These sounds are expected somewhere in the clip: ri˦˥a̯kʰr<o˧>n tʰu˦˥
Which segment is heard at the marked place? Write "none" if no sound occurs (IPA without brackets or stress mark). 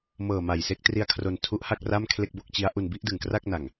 o˧